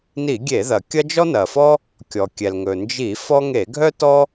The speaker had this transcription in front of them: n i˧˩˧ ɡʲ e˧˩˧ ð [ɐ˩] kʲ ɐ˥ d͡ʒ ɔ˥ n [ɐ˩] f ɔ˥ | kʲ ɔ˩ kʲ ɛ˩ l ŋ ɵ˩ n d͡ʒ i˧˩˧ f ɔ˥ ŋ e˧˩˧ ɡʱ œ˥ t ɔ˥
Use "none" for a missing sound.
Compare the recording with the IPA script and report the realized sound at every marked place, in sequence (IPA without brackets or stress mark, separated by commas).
ɐ˩, ɐ˩